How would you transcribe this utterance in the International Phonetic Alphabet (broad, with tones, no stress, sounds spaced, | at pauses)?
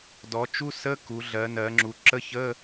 d ɔ˩˧ t͡ʃ u˧˥˧ s ə˧˥˧ k u˩˧ ɮ ɜ˩˧ n ɜ˩˧ ŋ͡ǁ u˩˧ ǁ ə˧˥˧ ç ə˧˥˧